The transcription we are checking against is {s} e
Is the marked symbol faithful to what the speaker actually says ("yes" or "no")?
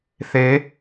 no